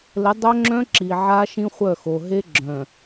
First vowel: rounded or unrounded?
unrounded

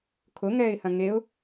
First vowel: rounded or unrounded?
rounded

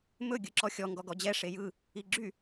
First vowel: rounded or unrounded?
rounded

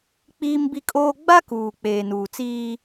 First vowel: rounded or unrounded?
unrounded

